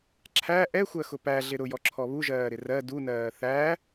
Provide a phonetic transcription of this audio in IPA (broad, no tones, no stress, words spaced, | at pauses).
ǁʰæ ʔɛxʷɜxʊ pæɮɪ ɾʊjɔǁʰɔ βuʒɜːɾɪ rɜ dunɜː θæ